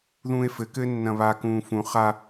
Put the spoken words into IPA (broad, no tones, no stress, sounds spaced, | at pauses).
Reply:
ð ũː e̯ f ɘ k ɘː nː ɐ̃ β a k ũː f ũ χ a